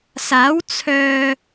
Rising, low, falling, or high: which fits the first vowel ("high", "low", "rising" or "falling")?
rising